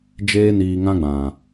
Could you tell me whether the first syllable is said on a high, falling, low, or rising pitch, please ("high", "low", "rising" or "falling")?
high